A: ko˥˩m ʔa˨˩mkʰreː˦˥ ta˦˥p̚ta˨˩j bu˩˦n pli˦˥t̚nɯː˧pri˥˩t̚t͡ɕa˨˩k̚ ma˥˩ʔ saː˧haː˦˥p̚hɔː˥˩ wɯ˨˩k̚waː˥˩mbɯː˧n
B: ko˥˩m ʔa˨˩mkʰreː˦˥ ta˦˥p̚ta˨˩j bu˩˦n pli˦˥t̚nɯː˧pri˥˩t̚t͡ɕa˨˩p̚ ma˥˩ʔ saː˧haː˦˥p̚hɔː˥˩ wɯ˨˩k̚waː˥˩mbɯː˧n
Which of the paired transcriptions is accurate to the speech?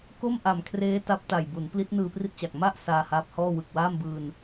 A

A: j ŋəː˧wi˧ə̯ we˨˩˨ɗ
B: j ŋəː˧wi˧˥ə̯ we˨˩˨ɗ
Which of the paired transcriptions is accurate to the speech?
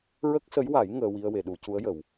A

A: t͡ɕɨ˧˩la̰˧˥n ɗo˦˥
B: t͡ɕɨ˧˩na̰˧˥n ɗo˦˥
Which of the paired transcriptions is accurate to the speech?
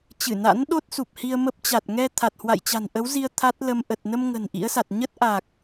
B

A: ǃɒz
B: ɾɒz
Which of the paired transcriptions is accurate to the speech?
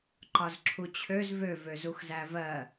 A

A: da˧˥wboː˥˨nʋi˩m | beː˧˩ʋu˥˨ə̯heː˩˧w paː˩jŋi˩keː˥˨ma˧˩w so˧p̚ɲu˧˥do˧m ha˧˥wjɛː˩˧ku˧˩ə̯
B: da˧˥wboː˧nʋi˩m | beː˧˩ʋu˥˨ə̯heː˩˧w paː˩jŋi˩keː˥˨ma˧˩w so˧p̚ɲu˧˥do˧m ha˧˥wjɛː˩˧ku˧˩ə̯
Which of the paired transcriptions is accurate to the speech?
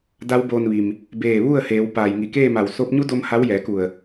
B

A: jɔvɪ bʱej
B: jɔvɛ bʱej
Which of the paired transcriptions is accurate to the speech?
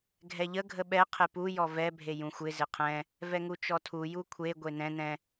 B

